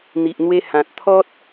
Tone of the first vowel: low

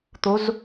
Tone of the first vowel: rising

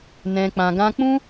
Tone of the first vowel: low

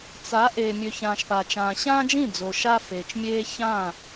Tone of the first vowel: rising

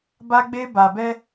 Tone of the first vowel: high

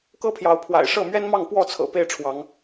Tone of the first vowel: high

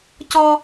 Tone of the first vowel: high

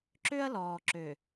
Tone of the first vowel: high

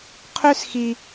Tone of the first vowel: high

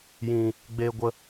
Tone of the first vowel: low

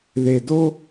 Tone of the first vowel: low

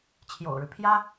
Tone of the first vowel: low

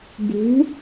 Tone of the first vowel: rising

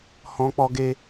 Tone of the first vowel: high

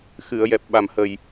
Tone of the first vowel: low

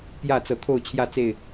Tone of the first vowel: falling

